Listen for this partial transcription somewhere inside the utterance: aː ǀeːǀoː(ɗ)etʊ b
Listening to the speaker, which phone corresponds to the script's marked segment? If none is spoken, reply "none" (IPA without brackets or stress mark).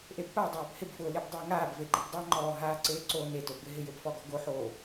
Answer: n